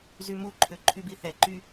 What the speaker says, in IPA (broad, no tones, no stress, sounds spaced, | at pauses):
z y m u ǃʰ ø ǃʰ y b i θ ɛ ǃ y